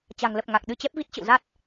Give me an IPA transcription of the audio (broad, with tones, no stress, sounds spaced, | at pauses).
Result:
t͡ɕ a̤˨˩ ŋ l ə˨˩ p̚ ŋ a˨˩ k̚ ɗ ɨ˧ t͡ɕ ɛ˦˥ p̚ v i˦˥ t̚ t͡ɕ ə̰˧˨ w z a˦˥ t̚